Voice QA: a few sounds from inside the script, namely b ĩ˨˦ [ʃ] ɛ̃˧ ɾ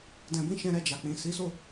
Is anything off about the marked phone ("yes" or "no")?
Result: no